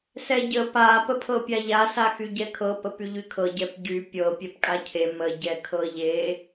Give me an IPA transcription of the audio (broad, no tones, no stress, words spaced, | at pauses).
sɛɟə pa pəpʰɤpʲaʎa saxyɟɛkʰɤ pəpyʎykʰɤ ɟɛpɟy pʲɤ pʲɛpkʼacʰe mə ɟɛkʰɤʎe